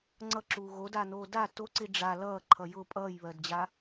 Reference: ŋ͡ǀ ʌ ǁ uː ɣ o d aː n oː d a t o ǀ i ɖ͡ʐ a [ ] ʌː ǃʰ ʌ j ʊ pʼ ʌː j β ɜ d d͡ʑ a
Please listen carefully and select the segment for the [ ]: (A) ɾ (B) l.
B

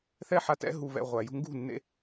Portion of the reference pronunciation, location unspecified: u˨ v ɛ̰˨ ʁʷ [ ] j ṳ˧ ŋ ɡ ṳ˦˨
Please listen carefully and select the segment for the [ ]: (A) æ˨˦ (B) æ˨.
B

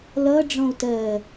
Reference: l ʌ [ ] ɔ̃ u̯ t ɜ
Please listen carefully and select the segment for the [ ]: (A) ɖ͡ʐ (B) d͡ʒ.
A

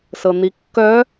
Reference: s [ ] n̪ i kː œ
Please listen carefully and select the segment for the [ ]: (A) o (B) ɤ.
B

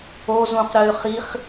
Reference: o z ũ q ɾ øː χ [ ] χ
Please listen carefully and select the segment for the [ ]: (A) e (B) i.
B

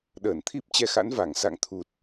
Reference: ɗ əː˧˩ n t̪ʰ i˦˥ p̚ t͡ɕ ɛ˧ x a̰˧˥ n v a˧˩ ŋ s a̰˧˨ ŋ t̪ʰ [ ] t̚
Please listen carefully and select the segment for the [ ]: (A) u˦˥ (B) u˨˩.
B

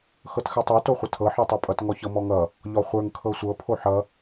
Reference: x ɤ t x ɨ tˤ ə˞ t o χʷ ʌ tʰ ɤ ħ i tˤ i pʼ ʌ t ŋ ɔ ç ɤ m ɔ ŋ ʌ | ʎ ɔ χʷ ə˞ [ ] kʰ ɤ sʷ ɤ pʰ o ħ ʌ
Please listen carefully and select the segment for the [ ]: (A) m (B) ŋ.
B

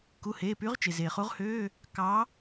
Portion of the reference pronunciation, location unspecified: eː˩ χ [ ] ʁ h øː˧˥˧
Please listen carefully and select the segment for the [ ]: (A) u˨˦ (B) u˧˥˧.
A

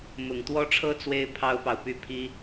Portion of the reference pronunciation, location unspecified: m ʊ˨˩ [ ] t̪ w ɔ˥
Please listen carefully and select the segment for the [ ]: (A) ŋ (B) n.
A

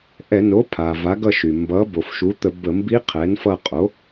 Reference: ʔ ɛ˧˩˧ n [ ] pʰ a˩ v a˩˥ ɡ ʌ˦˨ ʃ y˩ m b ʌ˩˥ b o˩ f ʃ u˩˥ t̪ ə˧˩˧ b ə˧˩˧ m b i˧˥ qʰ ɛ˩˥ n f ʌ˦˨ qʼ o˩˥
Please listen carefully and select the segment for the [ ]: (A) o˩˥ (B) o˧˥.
A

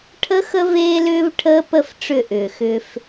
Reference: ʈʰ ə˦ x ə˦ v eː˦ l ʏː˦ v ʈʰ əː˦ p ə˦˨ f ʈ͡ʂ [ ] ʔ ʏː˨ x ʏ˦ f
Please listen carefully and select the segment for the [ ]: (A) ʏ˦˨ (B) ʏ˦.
A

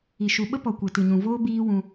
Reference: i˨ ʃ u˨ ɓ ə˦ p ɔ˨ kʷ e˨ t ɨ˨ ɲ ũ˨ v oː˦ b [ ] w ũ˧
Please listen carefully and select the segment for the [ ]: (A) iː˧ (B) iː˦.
B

